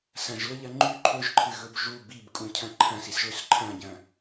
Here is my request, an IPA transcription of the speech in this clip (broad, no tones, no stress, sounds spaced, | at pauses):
s ɐ̃ ʒ l ɵ ʎ ɐ ŋ͡ǃ ʉ ǃʰ ɵ ʒ ǃʰ ɨ ɣ ɵ b ʒ u b i b kʼ ũ cʰ ɐ̃ ǃʰ ɐ̃ s i s ɭ ɵ s ǃʰ ɐ̃ ɟ ɐ̃